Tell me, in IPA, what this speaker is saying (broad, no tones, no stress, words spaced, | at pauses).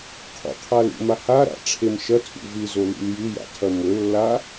qʰṵqʰalṵma haɾa̰ ʈ͡ʂʰemʃɐtʰṵ vɨzo lḭljɨja̰ tʰɐmɵlːa